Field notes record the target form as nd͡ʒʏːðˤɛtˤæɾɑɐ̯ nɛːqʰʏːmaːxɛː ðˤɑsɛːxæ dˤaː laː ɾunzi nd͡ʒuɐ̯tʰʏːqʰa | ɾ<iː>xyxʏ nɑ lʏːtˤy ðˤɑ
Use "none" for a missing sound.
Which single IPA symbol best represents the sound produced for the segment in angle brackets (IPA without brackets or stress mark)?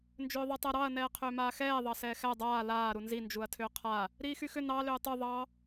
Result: iː